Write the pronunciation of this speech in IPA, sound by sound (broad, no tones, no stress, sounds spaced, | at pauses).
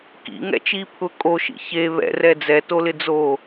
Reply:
k ḭ ŋ ɛ̰ t͡ʃ i pʰ ʊ kʼ o ʃ ḭ ç e β ɛ̰ r ɛ d͡z ɛ t o l ɪ d͡z o